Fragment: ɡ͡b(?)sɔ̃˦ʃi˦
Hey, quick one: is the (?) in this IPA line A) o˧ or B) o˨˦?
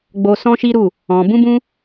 A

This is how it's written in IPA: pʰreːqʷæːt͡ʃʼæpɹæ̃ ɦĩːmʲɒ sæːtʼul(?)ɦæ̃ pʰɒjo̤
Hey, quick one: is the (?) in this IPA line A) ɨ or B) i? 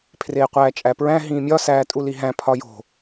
B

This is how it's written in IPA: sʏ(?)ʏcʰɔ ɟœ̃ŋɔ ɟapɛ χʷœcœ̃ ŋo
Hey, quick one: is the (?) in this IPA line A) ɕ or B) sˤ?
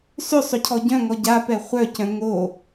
B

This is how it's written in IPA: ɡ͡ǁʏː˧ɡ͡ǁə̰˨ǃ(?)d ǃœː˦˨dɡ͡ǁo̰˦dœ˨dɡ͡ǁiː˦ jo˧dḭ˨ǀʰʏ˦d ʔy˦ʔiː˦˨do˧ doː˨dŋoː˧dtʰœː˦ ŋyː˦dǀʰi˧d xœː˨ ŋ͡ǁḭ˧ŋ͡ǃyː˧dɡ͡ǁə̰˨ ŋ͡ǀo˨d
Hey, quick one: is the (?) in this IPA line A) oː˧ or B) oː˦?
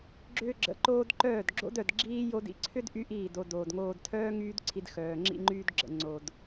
A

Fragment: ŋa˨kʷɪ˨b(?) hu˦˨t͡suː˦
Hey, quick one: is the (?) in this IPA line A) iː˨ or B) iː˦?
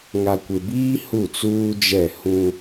B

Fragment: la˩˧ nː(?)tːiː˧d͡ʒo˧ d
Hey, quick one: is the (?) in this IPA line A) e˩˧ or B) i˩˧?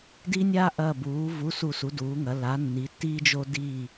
B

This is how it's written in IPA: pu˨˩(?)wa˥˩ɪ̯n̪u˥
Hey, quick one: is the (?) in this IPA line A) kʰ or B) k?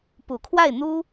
A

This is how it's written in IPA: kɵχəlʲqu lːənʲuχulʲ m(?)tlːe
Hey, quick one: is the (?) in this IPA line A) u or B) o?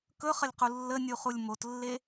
B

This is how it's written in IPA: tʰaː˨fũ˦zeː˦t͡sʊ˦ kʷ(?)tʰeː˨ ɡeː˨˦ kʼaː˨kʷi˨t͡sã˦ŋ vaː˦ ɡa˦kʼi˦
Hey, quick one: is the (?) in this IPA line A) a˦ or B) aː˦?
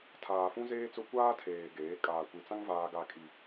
B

